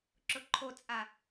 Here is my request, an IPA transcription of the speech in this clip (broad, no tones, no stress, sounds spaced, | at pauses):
ǁ ʊ ǃʰ o t͡sʼ a